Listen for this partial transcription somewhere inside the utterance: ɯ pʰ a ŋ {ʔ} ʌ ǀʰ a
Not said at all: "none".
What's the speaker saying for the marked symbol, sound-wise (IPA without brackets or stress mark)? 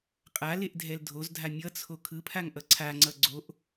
ʔ